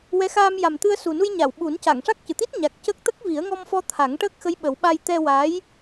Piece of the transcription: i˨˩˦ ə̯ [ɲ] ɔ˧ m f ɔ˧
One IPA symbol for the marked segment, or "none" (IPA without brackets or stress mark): ŋ